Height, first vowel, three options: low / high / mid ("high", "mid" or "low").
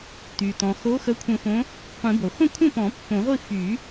high